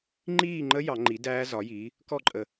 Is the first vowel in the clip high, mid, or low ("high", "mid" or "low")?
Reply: high